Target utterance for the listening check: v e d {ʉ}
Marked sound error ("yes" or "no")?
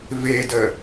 yes